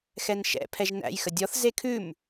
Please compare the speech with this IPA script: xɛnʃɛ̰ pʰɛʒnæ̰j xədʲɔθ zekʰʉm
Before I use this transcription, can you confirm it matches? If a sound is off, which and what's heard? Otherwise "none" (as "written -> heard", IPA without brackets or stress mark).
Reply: none